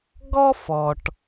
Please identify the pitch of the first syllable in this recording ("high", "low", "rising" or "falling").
high